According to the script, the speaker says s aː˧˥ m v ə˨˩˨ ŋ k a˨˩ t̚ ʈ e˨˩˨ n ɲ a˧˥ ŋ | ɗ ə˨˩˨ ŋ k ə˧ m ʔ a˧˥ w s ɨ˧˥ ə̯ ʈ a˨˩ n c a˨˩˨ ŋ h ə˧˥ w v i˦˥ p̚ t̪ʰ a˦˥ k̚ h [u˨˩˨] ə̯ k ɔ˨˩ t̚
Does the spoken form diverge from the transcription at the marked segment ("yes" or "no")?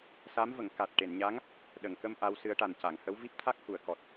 no